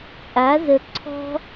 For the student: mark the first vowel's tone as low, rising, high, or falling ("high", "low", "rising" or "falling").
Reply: rising